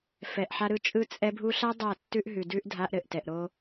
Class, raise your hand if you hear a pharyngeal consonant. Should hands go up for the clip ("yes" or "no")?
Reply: yes